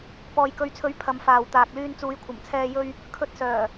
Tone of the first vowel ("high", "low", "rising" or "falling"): low